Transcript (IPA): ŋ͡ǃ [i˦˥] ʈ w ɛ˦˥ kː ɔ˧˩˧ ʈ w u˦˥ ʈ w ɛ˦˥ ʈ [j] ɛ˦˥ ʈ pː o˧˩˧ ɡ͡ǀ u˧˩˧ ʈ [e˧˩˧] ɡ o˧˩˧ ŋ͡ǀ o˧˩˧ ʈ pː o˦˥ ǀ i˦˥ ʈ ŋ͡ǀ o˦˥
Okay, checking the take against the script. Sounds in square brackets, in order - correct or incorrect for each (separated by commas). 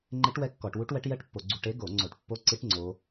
incorrect, correct, incorrect